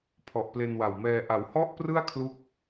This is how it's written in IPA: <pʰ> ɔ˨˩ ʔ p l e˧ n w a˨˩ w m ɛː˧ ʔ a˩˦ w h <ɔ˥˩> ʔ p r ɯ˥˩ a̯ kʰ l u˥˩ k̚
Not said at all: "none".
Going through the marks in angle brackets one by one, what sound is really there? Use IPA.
pʰ, ɔ˥˩

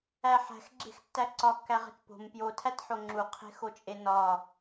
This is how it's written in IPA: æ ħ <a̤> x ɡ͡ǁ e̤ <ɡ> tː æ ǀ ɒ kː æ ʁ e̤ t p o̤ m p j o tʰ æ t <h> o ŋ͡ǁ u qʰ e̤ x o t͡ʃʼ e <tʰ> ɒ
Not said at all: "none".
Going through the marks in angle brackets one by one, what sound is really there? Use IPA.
æ̤, x, ħ, n

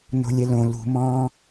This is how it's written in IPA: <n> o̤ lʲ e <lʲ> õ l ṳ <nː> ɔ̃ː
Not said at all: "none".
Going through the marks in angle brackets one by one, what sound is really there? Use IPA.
n, l, m

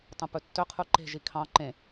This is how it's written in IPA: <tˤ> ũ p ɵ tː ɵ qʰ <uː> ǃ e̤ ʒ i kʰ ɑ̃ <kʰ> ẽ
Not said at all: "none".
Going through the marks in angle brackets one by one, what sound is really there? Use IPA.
tˤ, u, ǃ

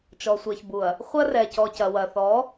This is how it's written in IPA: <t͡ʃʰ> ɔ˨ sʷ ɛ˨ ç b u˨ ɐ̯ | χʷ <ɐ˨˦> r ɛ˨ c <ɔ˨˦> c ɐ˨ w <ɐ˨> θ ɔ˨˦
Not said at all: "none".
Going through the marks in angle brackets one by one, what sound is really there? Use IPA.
t͡ʃ, ɐ˦, ɔ˨, ɐ˨

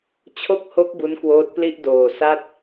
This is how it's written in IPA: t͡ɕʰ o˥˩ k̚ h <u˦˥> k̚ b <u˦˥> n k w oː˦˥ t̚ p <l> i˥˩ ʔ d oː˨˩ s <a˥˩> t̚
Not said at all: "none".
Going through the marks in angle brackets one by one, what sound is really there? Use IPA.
o˦˥, u˦˥, l, a˥˩

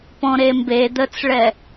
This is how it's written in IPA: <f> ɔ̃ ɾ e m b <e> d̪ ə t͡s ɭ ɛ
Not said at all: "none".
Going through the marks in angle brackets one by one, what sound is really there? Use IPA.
p, e

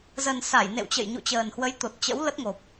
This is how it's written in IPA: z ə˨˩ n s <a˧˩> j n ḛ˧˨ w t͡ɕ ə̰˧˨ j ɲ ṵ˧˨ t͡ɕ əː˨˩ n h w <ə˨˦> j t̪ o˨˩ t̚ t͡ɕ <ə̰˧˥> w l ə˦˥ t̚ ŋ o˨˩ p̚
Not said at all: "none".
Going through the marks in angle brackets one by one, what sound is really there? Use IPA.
a˧˩, ə˨˦, ə̰˧˥

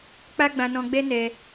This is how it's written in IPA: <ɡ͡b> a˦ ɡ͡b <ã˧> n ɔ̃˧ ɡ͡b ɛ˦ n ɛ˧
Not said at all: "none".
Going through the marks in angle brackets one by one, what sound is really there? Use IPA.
k͡p, ã˧

